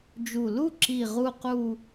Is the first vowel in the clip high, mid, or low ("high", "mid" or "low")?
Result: high